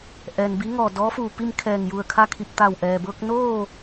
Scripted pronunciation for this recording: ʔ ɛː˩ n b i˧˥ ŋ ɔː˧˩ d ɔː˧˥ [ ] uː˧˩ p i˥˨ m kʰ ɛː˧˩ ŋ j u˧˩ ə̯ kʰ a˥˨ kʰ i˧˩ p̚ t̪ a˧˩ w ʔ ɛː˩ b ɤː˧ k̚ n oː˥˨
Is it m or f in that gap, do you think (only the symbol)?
f